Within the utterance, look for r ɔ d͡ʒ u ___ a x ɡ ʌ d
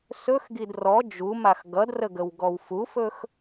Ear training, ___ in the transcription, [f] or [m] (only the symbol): m